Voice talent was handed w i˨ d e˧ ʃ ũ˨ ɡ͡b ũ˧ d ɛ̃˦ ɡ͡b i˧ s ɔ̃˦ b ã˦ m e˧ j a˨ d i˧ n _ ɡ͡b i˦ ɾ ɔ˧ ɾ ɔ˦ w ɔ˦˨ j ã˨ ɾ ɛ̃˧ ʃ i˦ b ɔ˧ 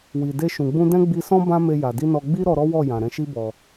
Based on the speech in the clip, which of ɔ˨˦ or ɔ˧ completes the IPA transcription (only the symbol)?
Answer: ɔ˧